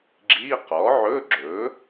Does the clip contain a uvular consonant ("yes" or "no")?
yes